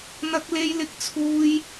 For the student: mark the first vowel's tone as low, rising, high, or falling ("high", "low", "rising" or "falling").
high